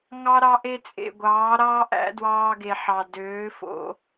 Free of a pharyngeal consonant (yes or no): no